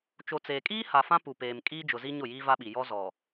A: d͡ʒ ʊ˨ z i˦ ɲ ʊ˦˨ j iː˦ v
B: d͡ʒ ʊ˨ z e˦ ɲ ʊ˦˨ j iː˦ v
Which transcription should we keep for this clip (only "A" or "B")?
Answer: A